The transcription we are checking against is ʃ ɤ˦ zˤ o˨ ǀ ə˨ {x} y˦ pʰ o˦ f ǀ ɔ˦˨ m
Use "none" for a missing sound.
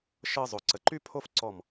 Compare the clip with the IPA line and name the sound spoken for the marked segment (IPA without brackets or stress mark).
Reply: ǃ